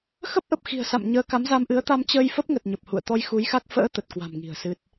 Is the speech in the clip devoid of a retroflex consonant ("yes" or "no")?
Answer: yes